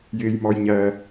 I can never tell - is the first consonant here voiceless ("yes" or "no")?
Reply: no